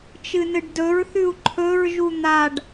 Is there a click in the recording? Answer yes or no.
yes